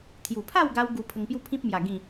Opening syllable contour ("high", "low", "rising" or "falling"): low